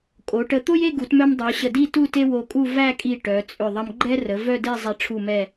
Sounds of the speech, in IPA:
kʼ o˩˧ ʈ ə˧ t̪ o˥ j e˥˧ ɡ u˩˧ t m œ˧ m dˤ œ˩˧ ɕ ə˧˩ d i˥˧ t u˥˧ t e˥ w o˧ kʼ u˥˧ v æ˥˧ kʼ i˧˩ ʈ œ˩˧ t͡sʼ ʏ˧˩ ðˤ ɐ˧ m ɡ͡ǃ ɛ˥ r ə˩˧ v œ˥˧ d e˥˧ zˤ ɛ˧ ʈ͡ʂʰ u˧˩ m ɛ˧˩

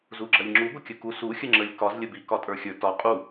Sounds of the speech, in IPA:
z u ɡ͡ǁ ɐ lʲ ŋ͡ǁ u ɡʷ ə kʲ ə k u s u xʲ ə ŋ͡ǁ ə lʲ k ɒ z lʲ ə b i k ɒ tʼ ə˞ xʲ ə˞ t ɒ qʼ u

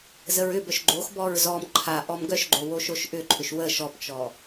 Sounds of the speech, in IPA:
z ə ɹ ʏ b œ ʃ ɡ͡ǃ o x b ɔ ɹ z ɔ m ǃʰ a ʔ ɔ m ɡ œ ʃ ɡ͡ǃ o w o ʃ o ʃ ʔ ʏ ǃʰ ʏ ʃ w ə ʃ ɔ p t͡ʃ ɔ

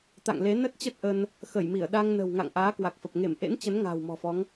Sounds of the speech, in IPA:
t̪ a̰˧˨ ŋ l e˨˦ n ə˦˥ t̚ t͡ɕ ə˦˥ t̚ ʔ ə˧ n | x ə˧˩ j m i˧˩ ə̯ ɗ a˧ ŋ n ə̤˨˩ w ŋ a̰˧˨ ŋ ʔ aː˨˦ k w a˨˩ k̚ f ə˨˩ p̚ ŋ e˧˩ m ʔ ḛ˧˥ n t͡ɕ ə˨˦ n ŋ a̤ː˨˩ w m ɔ̤˨˩ f ɔ˨˦ ŋ

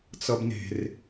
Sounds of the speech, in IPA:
t͡s ʌ b n e̤ r

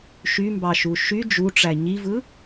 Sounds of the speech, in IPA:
ʃ y m b ɑ ʃ u ʃ y d͡ʒ u ʈ͡ʂ æ ɲ i v ɯ

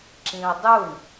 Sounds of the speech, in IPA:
ǁ ĩ ʊ̯ dˤ u ɳ

